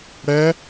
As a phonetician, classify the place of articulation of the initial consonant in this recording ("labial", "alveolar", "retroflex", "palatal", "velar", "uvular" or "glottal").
retroflex